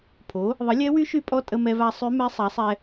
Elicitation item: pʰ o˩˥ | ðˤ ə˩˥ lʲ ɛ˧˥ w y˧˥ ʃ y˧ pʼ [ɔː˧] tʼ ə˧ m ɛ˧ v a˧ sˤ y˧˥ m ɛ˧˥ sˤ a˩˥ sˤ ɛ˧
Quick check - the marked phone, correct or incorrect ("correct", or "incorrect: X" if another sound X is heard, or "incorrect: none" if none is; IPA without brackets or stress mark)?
incorrect: ɔ˧